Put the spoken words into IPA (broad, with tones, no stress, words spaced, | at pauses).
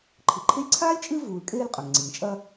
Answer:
ǃʰɨ˨ǃʰe˥lʲ ǀʰaː˥lʲt͡ʃʼɨ˦ vuː˨lkʼeː˦lqʼɵ˩ŋ ŋ͡ǀi˩ŋt͡ʃʼɐ˦